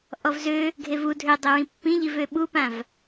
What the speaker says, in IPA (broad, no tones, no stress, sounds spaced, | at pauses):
ʔ ɔ v z ø | ɡʱ e v u dʱ ø dˤ ɵ ɹ ĩ pː ĩ ʎ i v ø ɓ u p ã v